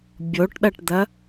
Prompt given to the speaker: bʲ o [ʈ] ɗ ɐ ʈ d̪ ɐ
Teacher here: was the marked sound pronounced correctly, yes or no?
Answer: yes